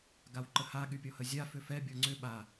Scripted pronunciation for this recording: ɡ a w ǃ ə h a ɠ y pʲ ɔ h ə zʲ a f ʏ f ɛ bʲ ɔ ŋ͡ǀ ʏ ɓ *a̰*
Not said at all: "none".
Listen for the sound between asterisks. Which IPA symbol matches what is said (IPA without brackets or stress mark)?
a